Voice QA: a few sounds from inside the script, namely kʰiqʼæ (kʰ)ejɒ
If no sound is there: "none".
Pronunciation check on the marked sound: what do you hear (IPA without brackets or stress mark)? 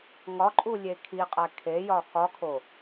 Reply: kʰ